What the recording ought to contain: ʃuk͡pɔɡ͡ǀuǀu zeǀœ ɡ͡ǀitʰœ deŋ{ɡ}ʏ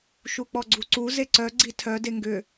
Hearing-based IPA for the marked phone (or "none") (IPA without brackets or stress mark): ɡ